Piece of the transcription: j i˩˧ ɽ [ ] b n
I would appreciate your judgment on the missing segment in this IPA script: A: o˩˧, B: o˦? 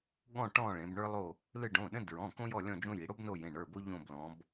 B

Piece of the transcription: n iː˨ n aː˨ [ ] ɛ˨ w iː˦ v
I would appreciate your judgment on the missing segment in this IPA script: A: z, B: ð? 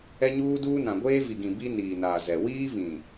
A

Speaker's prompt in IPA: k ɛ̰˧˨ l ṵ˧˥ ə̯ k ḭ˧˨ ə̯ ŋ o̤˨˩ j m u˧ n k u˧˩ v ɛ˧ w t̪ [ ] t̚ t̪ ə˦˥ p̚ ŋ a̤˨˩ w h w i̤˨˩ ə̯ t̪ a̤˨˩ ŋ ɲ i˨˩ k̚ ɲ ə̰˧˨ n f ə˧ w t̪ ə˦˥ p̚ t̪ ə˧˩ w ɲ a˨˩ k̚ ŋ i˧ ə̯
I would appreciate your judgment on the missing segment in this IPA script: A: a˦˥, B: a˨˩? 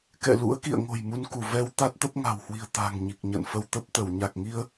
A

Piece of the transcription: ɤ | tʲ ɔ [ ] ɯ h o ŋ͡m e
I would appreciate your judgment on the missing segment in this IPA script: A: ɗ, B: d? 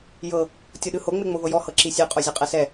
A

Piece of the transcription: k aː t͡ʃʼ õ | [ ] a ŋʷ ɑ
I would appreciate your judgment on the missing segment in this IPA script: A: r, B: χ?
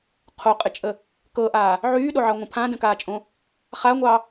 B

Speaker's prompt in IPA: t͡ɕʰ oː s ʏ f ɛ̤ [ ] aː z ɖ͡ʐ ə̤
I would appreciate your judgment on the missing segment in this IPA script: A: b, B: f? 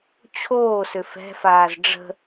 B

